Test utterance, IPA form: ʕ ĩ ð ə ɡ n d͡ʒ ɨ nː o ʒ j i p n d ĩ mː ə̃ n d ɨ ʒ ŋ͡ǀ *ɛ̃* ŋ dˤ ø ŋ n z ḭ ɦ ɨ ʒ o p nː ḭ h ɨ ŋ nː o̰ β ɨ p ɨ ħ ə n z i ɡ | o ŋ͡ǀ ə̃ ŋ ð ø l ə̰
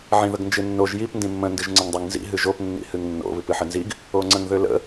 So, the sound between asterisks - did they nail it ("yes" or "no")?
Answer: no